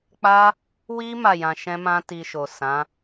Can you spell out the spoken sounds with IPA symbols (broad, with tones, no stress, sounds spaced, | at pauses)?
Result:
k͡p a˦ | w i˦ m a˦˨ j ã˧ ʃ ɛ̃˦ m ã˦ t i˧ ʃ o˨ s ã˨˦